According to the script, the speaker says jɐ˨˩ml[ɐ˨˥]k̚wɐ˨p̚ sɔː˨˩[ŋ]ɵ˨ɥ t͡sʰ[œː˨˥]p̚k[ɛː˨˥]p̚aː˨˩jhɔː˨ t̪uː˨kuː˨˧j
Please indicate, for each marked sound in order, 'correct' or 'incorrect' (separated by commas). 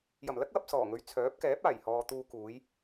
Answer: incorrect, correct, correct, correct